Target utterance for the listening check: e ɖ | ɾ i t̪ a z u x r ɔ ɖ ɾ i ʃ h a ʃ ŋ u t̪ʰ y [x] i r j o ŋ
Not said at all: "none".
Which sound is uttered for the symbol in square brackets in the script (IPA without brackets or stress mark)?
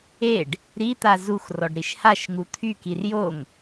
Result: k